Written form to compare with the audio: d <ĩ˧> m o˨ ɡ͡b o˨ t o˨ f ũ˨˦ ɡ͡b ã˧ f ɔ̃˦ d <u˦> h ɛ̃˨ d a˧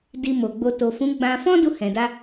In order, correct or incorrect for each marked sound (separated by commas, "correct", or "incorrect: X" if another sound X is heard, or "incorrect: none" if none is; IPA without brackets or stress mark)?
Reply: incorrect: i˧, incorrect: u˧